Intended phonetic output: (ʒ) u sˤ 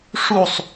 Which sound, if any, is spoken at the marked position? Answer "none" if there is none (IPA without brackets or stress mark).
ʂ